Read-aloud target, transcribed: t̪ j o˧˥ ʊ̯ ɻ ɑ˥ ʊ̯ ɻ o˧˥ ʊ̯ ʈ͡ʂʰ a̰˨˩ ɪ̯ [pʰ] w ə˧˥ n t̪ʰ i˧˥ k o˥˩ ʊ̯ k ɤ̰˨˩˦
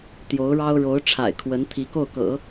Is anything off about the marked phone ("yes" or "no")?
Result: yes